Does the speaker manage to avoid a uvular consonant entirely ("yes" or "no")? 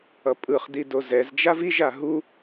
no